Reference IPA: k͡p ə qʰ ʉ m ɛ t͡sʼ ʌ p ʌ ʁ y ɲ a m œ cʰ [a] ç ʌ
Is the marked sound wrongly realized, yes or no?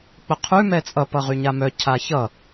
no